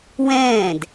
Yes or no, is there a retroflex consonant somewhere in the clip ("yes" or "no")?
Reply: no